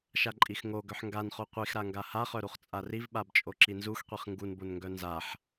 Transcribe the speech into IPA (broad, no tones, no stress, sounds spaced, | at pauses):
ʃ a ǃʼ i x ŋ o ɡ œ ħ ŋ ɡ a n χ o qʷ i x ɾ a ŋ ɡ a h a χ œ ɾ u χ t͡sʼ a r i v ɓ a b t͡ʃʼ o ǁ i n z u x qʷ i χ ŋ ɡ u n b o n ŋ ɡ œ n z a ħ